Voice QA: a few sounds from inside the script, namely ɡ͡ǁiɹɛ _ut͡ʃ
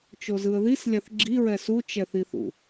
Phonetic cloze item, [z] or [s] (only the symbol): s